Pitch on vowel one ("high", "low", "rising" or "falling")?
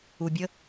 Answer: low